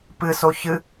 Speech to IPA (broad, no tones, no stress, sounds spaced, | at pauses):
p ɨ s o ç ɨ